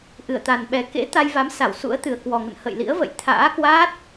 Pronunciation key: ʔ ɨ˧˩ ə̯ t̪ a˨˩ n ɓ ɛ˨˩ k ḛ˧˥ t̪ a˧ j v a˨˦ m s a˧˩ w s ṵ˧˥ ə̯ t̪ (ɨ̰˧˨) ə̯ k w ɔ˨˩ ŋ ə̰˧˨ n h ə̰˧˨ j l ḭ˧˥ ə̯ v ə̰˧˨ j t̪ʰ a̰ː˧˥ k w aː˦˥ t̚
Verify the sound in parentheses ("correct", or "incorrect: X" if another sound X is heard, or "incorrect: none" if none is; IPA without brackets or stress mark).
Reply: incorrect: ɨ˨˩